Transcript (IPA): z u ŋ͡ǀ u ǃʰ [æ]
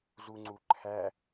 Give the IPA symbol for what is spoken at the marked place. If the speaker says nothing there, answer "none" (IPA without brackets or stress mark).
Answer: æ